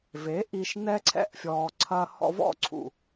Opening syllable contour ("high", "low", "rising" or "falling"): rising